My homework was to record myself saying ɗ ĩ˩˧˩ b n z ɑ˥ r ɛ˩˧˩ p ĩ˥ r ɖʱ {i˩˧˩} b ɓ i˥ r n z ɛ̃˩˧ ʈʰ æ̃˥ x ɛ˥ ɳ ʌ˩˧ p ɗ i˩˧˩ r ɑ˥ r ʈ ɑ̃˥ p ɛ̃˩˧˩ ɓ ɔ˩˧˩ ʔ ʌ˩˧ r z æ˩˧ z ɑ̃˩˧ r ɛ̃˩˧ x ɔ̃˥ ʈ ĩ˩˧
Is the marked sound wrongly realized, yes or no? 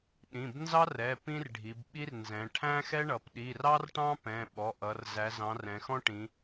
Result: yes